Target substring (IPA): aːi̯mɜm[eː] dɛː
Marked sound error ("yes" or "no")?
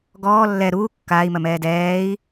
yes